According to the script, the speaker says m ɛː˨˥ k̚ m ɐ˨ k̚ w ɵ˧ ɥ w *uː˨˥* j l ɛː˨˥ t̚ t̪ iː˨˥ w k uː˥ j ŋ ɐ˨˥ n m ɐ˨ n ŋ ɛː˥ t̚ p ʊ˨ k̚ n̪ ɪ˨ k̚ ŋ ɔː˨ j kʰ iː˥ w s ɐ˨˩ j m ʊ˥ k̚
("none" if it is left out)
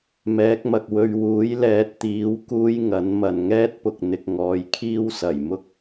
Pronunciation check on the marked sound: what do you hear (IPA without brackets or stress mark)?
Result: uː˨˥